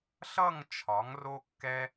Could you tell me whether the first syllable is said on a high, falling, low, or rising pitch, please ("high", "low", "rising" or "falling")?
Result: falling